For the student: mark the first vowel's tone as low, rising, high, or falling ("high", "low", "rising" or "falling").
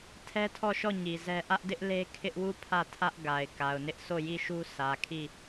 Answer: high